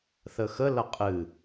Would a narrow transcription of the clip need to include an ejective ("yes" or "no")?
yes